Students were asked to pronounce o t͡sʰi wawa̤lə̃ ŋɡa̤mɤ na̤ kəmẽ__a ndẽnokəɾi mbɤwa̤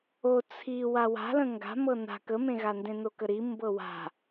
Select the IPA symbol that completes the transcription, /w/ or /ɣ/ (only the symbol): ɣ